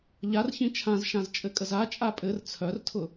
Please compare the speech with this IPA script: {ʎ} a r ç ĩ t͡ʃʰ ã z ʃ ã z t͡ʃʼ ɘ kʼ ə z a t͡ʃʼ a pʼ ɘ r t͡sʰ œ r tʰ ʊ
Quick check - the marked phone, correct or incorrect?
correct